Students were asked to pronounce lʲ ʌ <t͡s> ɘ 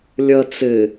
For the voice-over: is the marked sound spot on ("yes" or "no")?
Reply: yes